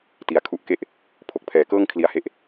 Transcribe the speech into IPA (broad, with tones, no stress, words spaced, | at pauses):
ti˩˦a̯kʰu˦˥ʔke˥˩ʔ | pʰo˨˩k̚pʰɛː˩˦kɤː˥˩ŋ kʰli˧a̯he˦˥ʔ